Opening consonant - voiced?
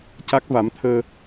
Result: no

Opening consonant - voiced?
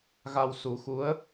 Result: yes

